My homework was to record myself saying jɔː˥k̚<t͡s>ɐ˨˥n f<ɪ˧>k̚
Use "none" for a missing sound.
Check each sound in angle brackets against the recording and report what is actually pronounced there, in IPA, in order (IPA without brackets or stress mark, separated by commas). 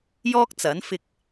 t͡s, ɪ˧